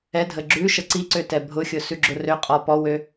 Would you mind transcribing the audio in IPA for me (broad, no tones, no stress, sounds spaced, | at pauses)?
ɛ dʱ ə ɡ͡ǁ ʉ ʃ ə ǀ i ǀ ø t ɛ bʱ ʊ xʲ ʊ s ʉ ɡ͡ǁ ʊ r ø qʼ ɔ p ɔ w ø